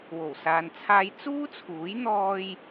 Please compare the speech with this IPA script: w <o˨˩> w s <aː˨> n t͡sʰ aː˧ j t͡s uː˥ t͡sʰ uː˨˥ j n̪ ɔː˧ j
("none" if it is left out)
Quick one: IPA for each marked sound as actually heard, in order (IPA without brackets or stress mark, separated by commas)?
o˨˩, aː˨